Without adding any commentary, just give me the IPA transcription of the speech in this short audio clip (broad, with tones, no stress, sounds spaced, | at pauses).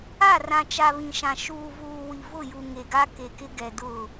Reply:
a˦˨ r ã˨ t͡ʃ a˨ β ĩ˨ ʃ ã˨ ʃ uː˨ v uː˨ w i˨ v ʊ˦˨ j u˨ ŋ e˨ ɡ a˦ k e˨ k ɪ˦ ɡ ɛ˨ d ʊ˦˨